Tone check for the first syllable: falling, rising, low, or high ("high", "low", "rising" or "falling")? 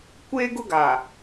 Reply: high